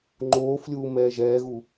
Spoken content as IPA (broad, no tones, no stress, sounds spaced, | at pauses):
ŋ͡ǃ oː f lʲ uː m ɛː ʒ ɛː ɣ u